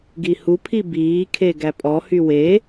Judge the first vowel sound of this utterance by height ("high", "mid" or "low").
high